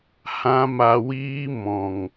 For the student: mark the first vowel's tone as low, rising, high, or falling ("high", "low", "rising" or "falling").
high